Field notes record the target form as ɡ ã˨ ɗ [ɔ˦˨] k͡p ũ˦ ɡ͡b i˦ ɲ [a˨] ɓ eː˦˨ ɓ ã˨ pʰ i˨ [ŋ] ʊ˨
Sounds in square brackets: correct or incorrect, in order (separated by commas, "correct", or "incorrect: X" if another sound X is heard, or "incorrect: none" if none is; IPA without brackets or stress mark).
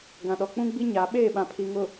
incorrect: ɔ˨, incorrect: a˨˦, correct